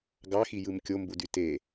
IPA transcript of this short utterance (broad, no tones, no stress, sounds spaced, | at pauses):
ɡ ɑ x i j ɯ m kʲ o m b u d y t e